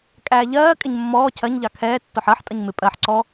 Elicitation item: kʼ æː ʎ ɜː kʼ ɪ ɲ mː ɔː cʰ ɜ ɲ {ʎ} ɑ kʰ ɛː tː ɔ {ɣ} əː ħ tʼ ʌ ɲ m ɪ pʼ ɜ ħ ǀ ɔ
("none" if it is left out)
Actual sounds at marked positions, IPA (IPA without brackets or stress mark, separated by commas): ʎ, ħ